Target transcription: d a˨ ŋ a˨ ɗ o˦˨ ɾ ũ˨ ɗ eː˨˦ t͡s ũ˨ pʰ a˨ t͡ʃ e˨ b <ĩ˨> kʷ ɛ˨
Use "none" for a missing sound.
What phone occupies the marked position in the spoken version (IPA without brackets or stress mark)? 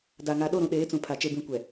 ĩ˨